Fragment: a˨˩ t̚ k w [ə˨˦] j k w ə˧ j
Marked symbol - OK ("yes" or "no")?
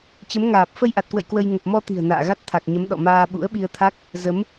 no